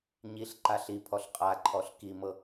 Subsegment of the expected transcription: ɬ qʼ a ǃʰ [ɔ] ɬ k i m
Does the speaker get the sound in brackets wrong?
no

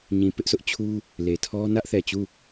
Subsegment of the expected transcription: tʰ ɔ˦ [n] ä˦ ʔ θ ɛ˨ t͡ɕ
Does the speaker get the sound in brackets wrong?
no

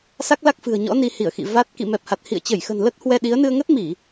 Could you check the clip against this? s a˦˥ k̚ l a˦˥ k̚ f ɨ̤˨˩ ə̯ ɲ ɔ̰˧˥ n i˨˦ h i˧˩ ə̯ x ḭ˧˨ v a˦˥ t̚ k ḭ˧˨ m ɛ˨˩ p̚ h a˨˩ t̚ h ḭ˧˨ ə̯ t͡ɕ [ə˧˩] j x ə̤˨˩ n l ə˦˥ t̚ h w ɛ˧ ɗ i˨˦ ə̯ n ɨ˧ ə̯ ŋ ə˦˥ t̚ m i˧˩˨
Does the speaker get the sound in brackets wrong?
no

